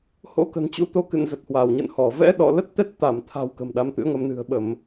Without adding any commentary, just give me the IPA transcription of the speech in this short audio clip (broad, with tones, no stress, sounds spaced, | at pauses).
h o̰˧˥ k ə̤˨˩ n t͡ɕ ṵ˧˥ t̪ o˧ k ɨ̰˧˨ n z ə˨˩ t̚ h w a˧˩ w ɲ ə̰˧˨ n h ɔ˧˩ v ɛ̰˧˥ ɗ ɔ̰˧˨ l ə˦˥ t̚ t̪ ɛ˦˥ t̚ t̪ a˧˩ m t̪ʰ a̤˨˩ w k ə̤˨˩ m ɗ a˨˦ m t̪ ɨ̰˧˥ ə̯ ŋ ə˧ m n ɨ̤˨˩ ə̯ ɓ ə˧˩˨ m